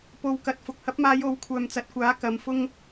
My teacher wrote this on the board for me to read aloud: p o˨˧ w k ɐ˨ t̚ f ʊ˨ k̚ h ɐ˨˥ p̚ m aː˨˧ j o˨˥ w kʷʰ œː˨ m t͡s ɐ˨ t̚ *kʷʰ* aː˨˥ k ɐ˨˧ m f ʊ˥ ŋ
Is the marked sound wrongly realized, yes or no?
yes